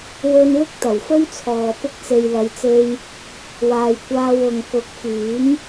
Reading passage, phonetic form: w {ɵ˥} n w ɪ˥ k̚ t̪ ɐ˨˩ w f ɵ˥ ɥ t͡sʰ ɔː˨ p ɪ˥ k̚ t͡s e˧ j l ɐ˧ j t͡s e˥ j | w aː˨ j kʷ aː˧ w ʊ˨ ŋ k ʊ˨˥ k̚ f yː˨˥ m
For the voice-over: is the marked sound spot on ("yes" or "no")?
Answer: yes